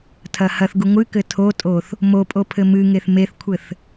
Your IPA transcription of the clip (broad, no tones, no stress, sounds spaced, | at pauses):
tʰ ɐ h ɐ θ ɡ u ŋʷ ɨ k ɘ tʰ o tʼ o θ | m o pʼ o pʰ ɘ m ɨ ŋ e θ m e θ kʷʰ ɘ θ